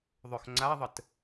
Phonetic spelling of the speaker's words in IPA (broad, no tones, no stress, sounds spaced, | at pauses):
ðˤ ʏ x ŋ͡ǀ a ðˤ ə t